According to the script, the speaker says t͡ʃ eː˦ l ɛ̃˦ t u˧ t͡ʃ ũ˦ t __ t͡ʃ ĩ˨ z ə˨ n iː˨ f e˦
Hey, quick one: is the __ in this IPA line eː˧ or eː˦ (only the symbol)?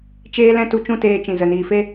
eː˧